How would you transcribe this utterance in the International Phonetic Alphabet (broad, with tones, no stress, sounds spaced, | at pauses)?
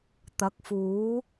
t̪ ɐ˨˥ k̚ f uː˨˥